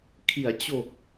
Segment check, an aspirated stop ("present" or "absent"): present